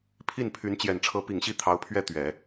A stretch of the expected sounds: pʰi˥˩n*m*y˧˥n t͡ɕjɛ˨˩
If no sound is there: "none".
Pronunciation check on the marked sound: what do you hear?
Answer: pʰ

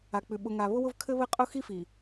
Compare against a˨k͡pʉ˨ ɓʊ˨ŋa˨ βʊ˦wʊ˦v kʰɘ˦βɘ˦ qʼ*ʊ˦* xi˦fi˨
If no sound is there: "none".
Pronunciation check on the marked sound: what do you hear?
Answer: ʊ˦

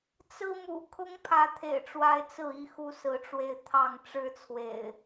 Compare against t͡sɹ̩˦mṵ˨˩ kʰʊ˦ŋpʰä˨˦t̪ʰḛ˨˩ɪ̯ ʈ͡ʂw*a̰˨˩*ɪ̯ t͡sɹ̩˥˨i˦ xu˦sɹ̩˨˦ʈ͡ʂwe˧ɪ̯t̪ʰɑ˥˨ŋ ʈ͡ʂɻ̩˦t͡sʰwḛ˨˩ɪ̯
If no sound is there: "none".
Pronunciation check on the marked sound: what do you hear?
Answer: a˦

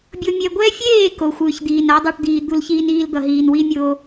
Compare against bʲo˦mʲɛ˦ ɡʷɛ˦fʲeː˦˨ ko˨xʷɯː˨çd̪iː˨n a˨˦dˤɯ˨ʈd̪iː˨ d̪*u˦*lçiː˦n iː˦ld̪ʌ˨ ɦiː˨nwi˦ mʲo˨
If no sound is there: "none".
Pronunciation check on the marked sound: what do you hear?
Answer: u˦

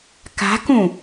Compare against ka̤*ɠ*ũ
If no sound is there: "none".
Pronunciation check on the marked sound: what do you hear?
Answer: k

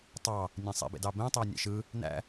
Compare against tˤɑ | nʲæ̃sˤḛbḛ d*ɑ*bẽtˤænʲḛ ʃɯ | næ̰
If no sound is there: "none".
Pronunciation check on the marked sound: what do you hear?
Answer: ɑ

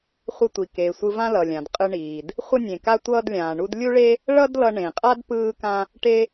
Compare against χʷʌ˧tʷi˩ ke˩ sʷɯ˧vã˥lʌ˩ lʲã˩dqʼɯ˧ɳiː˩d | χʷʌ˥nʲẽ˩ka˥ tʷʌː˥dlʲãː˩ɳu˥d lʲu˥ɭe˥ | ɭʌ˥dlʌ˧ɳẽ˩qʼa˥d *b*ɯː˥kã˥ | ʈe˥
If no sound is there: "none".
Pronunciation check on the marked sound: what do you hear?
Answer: p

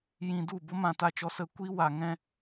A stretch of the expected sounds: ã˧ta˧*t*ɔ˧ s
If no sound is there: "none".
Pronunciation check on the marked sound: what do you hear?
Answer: t͡ʃ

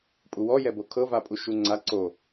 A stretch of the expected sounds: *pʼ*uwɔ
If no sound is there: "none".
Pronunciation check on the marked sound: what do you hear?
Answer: pʼ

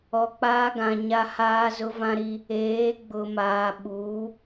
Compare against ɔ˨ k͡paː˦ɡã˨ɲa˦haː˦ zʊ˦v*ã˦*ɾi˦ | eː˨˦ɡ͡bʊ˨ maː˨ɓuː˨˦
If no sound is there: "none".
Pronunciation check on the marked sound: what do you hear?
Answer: ã˦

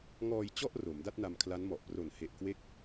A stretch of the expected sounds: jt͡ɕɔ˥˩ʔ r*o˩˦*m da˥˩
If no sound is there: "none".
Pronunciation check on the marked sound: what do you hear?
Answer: o˩˦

